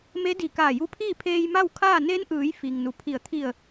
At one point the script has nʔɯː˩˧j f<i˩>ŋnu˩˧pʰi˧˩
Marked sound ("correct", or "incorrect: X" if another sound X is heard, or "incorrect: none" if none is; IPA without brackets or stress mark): correct